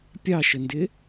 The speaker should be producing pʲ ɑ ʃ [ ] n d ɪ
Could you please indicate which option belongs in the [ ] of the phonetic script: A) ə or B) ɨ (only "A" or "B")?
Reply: A